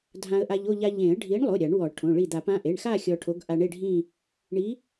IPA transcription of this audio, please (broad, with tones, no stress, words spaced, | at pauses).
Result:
dʱã˧ə̯ʔa˧ʎo˥˧ ʎa˧ʎẽ˨˩˦ə̯ ɖʱi˨˥ɳlˠo˩˧˩ ɾʲa˨˩˦ɳwɔ˨˩˦ʈʰõ˩˧˩ ɭi˧˩d̪a˨˩˦p ã˩˧˩ʔe˩˧˩ɳxa˥˧ xʲɔ˧ʈʰo˨˥ɡ ʔa˧ɳe˥˧ɖʱĩ˥˧ | ɳi˨˥